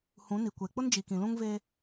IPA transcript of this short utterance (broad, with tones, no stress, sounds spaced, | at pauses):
h ũ˨˦ n i˨ kʷ e˨ k͡p ʊ˦ n d͡ʒ i˨ k ĩ˨ l ũ˦ ŋ v e˦